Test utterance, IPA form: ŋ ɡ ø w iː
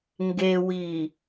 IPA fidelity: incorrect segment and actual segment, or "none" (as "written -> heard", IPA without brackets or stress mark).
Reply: ø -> e